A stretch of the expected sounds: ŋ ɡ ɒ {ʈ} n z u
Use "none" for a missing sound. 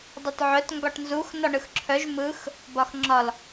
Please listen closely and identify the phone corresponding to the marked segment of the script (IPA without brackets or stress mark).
ʈ